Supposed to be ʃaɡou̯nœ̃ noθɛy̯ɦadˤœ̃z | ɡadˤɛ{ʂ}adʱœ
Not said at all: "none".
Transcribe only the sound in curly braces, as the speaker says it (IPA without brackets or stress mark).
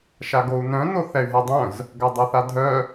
θ